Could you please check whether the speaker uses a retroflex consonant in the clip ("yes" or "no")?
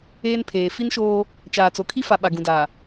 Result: no